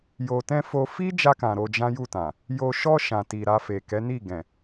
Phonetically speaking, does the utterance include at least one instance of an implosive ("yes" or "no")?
no